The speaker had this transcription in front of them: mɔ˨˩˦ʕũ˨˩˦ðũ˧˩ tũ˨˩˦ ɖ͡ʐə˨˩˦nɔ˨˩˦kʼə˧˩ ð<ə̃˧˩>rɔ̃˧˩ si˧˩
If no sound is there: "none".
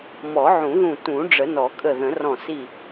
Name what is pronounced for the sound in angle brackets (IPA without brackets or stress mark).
ə̃˨˩˦